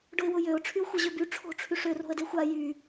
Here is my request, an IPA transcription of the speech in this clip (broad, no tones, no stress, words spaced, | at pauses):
ɖʊɪ̯wʊjøʊ̯ ʈ͡ʂʰyʊ̯xʷəʑøby ʈ͡ʂʰo̤ ʈ͡ʂʰyʂø ro̤ə̯dexʷa jy